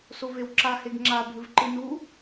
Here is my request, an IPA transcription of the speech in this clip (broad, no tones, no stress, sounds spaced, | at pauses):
s o v e w ǁ a h e ɡ ŋ͡ǁ a bʱ ɨ v ǃ ɨ n u